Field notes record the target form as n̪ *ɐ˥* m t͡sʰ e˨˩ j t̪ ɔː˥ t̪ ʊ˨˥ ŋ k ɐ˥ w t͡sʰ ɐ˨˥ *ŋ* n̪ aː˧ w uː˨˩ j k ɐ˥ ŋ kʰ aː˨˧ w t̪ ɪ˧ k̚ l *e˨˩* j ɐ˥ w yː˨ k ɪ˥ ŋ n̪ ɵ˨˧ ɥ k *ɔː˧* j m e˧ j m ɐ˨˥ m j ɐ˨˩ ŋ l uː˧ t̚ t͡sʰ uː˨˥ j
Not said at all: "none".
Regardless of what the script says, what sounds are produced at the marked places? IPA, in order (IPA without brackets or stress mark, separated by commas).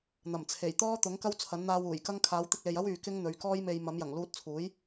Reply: ɐ˨˩, n, e˨, ɔː˥